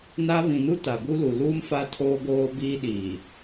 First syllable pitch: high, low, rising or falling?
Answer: high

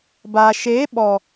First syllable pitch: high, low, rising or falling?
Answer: low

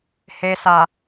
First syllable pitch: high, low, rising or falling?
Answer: low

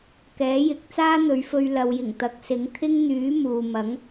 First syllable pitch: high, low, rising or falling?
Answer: rising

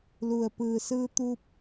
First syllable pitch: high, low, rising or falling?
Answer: low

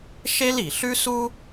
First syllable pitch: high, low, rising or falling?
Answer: high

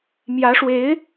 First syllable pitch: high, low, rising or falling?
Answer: rising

